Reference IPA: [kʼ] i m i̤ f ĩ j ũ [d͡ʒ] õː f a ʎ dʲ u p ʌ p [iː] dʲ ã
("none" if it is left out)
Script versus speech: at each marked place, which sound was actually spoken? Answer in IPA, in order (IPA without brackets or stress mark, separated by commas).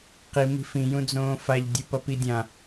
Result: q, d͡z, i